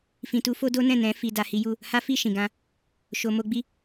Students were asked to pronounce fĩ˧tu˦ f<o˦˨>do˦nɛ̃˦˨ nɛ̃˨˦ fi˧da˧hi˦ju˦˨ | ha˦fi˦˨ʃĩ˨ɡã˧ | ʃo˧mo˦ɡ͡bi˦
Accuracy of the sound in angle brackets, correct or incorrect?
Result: incorrect